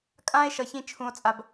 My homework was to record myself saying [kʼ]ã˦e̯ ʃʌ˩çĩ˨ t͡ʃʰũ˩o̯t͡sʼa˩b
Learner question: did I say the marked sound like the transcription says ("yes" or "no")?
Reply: yes